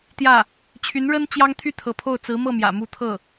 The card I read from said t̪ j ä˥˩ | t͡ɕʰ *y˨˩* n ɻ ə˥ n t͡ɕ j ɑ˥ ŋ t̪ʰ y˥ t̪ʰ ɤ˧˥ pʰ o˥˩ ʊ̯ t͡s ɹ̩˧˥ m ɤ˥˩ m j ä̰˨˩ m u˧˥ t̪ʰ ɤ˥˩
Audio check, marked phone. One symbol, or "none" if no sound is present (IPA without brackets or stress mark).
y˧˥